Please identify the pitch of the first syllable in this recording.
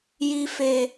low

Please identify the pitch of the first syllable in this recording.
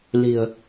low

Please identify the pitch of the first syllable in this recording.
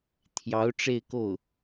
rising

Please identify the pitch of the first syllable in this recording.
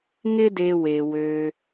high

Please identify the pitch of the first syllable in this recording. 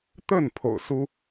falling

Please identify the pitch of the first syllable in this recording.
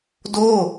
falling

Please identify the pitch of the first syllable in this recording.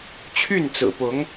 falling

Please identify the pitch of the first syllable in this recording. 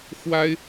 high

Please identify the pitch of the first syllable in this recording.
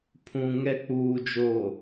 low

